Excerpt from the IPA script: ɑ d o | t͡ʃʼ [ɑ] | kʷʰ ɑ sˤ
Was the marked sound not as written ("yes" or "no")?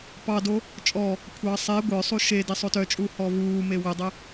yes